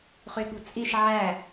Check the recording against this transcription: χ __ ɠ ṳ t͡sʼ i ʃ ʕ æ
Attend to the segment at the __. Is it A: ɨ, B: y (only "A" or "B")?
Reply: B